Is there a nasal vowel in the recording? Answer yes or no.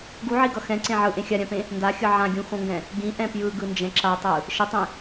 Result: yes